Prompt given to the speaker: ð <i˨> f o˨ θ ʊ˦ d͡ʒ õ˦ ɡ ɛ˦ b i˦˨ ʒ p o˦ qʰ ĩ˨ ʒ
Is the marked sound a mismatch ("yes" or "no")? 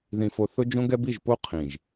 yes